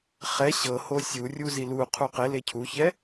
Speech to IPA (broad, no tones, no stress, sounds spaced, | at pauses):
χ ɛ ɕ ɤ h o sʲ u rʲ u z i l u qʰ u q e l e cʰ u ç ɛ